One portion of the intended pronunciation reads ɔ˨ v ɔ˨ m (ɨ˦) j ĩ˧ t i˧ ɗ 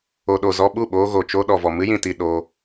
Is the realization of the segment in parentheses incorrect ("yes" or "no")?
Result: no